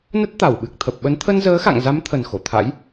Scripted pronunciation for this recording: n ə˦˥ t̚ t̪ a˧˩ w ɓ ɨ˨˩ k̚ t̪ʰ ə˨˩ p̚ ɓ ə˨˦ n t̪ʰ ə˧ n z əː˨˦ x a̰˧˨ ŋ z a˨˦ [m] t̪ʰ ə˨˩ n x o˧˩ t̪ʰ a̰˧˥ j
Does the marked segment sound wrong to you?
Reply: no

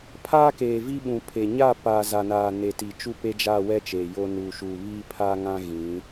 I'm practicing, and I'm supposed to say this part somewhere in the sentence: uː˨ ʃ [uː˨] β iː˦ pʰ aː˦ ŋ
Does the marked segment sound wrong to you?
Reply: no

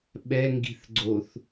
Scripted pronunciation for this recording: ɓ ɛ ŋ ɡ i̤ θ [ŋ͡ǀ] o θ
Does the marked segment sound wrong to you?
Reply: yes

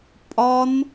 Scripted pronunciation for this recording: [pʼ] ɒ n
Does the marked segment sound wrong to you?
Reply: no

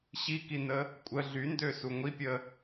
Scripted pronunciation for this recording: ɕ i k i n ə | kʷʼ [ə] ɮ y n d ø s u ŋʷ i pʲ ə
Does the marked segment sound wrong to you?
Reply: no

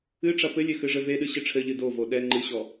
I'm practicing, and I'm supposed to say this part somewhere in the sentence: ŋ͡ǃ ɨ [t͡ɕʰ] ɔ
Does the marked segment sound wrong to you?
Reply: yes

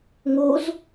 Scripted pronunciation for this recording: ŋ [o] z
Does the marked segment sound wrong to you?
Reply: no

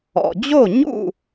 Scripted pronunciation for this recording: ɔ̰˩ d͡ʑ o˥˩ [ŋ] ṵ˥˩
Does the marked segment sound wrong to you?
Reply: yes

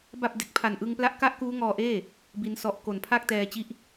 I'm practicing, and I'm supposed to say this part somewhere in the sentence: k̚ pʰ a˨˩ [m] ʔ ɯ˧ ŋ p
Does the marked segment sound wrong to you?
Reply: yes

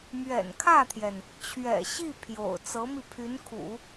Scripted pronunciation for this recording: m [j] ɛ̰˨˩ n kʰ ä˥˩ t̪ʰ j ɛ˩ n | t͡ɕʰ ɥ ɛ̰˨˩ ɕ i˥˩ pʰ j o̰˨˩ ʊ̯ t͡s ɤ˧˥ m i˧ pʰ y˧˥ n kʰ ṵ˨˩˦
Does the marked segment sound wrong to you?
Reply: yes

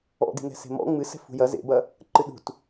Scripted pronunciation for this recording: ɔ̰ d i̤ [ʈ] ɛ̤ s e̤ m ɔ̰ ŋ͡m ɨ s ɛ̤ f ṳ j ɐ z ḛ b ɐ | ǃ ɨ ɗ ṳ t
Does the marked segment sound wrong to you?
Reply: yes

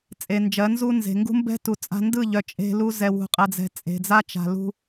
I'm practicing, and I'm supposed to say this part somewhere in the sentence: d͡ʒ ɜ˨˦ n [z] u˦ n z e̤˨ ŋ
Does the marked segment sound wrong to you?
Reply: no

